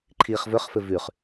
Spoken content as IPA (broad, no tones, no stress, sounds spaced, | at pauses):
ǃʰ iː χ v ɵ χ f ɘ v ʉ χ